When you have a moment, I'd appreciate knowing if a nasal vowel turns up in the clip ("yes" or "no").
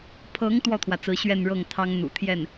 no